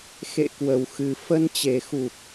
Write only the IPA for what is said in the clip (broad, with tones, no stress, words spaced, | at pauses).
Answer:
xḛ˧˨kwə˨˩wxɨ˨˩ fə˧nt͡ɕe˨˩xu˨˩p̚